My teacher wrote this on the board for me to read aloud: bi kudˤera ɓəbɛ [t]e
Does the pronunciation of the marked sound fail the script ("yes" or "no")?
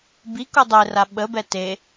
no